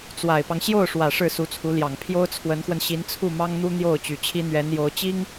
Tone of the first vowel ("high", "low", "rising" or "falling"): low